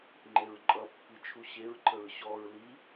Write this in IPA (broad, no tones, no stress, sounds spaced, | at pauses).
ŋ͡ǃ e ɹ ǃʼ ʌ pː i t͡ʃʰ u ɕ e ɹ ǃʰ ə ɹ ɕ ɔ ɹ l i